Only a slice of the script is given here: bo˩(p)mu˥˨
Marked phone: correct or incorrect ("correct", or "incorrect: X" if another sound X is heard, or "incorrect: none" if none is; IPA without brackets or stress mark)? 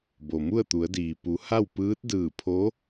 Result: incorrect: none